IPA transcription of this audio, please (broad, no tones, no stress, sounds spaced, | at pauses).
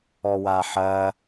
ɔ w a ħ ɐ